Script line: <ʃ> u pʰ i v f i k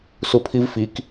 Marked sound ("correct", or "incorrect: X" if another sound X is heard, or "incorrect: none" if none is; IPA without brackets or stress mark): incorrect: s